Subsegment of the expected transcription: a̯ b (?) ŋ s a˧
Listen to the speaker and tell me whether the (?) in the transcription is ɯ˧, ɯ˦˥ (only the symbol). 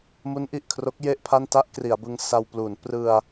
ɯ˧